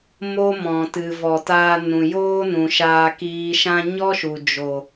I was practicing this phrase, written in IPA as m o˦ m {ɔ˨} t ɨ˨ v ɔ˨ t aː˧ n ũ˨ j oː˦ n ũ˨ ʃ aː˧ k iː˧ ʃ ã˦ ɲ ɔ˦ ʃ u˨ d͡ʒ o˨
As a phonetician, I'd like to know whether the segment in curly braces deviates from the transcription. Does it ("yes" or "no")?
yes